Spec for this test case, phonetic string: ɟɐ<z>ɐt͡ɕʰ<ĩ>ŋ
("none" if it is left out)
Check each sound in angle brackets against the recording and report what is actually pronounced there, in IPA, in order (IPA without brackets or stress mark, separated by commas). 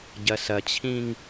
s, ĩ